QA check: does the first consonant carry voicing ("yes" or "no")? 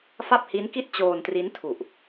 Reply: no